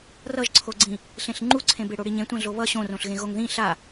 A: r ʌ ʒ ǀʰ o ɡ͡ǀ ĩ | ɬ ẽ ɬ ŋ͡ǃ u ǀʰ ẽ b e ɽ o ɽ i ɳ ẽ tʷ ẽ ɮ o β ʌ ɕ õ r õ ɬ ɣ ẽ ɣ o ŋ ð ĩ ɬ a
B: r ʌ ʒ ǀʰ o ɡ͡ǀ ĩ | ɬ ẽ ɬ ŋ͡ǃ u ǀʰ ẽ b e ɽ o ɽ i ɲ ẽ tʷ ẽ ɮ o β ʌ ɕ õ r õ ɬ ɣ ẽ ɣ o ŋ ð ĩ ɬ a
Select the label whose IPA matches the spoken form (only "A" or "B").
B